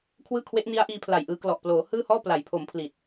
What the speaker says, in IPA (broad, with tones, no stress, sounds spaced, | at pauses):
kʰ w ɯː˥˩ kʰ w e˦˥ ʔ n i˦˥ a̯ ʔ iː˧ pʰ l a˨˩ j ʔ ɯː˧ k l ɔ˨˩ ʔ p l oː˩˦ h ɯː˥˩ h ɔː˥˩ p l a˩˦ j pʰ o˩˦ m pʰ l i˨˩ t̚